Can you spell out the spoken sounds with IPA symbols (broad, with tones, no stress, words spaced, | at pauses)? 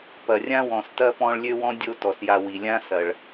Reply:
pɐ˩rʲã˦wɔ̃˩s tɐ˥pɔ̃˦ɭ lʲø˦ wɔ̃˥dʲo˦ tɔ˩sja˨wi˩lʲã˥ sɐ˩ɭ